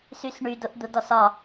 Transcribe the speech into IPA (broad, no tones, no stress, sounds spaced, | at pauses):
s y s ɳ y d ʊ ʔ d̪ ʊ d ɔ s ɒ